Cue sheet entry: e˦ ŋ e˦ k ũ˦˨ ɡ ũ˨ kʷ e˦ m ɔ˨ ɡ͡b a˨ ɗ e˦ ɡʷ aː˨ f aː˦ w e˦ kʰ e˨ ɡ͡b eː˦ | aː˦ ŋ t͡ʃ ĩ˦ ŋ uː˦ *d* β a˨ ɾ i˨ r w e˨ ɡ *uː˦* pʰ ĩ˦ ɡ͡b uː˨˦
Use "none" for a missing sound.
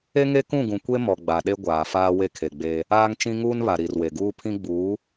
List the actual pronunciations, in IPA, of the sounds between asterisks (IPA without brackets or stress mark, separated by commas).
n, uː˦